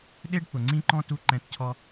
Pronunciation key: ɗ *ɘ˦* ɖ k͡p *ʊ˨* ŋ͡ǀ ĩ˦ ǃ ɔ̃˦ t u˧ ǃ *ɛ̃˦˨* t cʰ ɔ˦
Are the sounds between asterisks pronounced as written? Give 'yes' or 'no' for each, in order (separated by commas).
no, yes, no